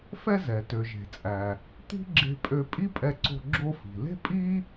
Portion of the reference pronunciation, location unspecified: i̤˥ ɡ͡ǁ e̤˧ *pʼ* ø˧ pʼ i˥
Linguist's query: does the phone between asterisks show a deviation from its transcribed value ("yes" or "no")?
no